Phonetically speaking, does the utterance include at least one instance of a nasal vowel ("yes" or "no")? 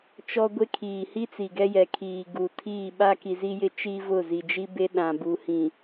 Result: yes